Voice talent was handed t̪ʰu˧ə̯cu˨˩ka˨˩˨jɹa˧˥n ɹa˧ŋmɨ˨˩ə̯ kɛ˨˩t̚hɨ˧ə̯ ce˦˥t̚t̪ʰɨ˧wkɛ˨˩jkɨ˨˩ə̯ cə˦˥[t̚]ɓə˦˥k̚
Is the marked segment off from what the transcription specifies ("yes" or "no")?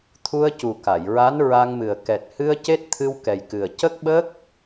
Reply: yes